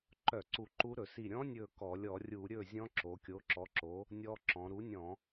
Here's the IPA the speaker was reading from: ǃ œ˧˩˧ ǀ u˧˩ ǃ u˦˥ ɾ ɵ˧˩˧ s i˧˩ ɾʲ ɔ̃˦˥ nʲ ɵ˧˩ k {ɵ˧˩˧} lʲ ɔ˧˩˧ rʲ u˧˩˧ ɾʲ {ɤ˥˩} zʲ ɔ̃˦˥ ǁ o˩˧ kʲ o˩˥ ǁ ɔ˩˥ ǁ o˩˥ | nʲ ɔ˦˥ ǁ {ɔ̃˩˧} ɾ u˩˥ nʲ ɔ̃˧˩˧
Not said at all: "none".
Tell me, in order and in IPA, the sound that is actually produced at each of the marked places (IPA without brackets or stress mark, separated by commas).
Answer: ɔ˧˩˧, ɵ˥˩, ɔ̃˩˧